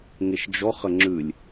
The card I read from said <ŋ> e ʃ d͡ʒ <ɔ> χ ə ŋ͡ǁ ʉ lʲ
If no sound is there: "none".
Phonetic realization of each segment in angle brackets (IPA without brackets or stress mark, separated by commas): ŋ, ɔ